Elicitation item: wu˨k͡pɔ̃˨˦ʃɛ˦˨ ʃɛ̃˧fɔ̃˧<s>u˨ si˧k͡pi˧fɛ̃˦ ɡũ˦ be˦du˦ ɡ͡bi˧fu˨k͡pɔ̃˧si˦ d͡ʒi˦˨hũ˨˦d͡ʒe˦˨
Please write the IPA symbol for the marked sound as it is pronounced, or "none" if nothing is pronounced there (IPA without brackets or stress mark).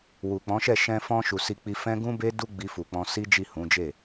ʃ